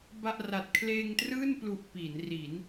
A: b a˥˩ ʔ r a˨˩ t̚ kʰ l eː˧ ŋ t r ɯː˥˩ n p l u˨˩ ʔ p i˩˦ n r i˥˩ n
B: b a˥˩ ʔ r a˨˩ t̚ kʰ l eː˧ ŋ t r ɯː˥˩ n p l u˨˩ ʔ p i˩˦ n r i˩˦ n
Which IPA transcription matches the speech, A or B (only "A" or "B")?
B